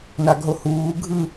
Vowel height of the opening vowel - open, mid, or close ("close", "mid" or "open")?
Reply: open